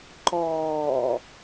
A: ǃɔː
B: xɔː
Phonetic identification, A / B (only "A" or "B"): A